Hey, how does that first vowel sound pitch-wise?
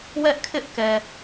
high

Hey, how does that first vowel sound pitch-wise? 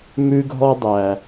high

